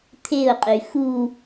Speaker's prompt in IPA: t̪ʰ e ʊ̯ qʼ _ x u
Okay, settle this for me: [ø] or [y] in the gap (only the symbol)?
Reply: y